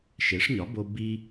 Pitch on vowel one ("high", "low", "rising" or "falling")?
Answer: rising